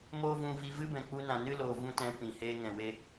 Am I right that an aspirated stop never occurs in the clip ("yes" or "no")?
yes